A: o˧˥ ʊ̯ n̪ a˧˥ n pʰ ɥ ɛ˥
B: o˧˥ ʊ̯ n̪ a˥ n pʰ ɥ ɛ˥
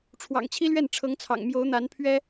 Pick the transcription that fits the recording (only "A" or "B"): A